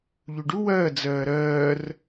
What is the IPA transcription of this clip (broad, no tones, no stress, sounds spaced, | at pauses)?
ʎ u ɖ u w ɜː d͡z ɜː ɾ ɜː r